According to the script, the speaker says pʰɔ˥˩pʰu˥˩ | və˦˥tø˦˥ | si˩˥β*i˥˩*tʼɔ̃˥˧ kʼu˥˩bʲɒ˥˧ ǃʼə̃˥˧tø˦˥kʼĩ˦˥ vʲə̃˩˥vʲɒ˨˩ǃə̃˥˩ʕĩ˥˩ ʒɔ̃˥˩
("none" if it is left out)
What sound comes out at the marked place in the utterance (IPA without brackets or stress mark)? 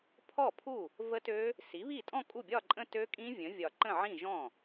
i˥˩